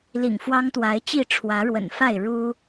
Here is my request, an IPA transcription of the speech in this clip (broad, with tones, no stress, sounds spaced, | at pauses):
l ḭ˨˩ ŋ f w ɑ˦ ŋ t̪ w a˨˦ ɪ̯ t͡ɕ i˥˨ ʈ͡ʂʰ w ä˨˦ ɻ w ə̰˨˩ n f a˥˨ ɪ̯ ɻ u˦